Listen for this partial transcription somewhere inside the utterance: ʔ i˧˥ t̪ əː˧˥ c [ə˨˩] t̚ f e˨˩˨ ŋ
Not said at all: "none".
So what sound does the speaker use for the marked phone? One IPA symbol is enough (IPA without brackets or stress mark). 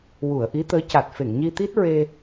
a˨˩